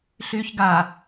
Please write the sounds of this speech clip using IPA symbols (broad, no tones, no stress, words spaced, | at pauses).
ɬyːçɡa